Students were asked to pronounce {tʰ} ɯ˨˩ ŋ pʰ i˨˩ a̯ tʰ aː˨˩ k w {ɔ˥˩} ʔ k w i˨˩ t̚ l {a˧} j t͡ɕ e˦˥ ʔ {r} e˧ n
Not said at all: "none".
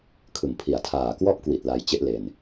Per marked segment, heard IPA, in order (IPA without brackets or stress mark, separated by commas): kʰ, ɔ˥˩, a˧, l